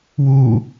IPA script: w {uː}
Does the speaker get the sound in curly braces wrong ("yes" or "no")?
no